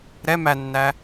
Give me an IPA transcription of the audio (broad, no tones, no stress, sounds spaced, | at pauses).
ɾ ɛ m æ nː æ